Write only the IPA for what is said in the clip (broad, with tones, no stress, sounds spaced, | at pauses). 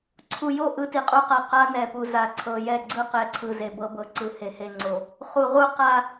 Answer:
ǀʰ u˨ j o˦˨ ʔ ɯ˦ t i˨ qʼ u˦ q a˨ q a˦ n ɛ˨ p u˨ z a˨˦ ǀʰ ɤ˨ j ɛ˦˨ ɡ͡ǀ ɯ˦ q ɛ˨ ǀʰ ɯ˨ z e˨ b ɤ˦ b ɤ˨ ǀ ɯ˨ h e˨ h e˨ ŋ͡ǀ o˨ | χ u˨ ʁ u˦ q a˦